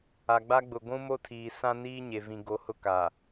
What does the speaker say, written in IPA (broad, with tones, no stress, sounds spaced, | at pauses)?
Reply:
a˨ ɡ͡b a˦ ɡ͡b ʊ˨ ɡʷ ũ˦ m o˦ tʰ iː˨ s ã˦ n iː˦ ɲ e˨ v ĩ˨ ɡ o˨˦ h ʊ˦ k a˨